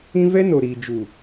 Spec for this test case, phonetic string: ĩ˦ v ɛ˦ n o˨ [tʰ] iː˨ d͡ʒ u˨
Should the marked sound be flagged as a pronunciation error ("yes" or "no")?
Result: yes